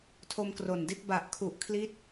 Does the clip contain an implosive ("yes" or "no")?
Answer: no